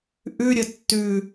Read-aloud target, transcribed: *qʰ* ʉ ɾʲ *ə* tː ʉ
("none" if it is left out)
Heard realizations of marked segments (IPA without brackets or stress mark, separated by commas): ʔ, ə